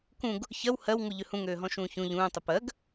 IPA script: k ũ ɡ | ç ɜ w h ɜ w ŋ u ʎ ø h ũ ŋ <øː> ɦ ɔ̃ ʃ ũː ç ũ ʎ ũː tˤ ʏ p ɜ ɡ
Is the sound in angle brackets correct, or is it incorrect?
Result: correct